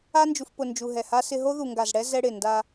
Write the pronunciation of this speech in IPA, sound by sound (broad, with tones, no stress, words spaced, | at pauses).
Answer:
a˦nd͡ʒu˨fpʊ˨ nd͡ʒu˨ɦɛ˨ha˦sɪ˦ ɦo˦ðu˨ŋɡa˨zɽɛ˦ zɛ˦ɽɪ˨ nda˦